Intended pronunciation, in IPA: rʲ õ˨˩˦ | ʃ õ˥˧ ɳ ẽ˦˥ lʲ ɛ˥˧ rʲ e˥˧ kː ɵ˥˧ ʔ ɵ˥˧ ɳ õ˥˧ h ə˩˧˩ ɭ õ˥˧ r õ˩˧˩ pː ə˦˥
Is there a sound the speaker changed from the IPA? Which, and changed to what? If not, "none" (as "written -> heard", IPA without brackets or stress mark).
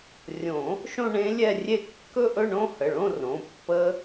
none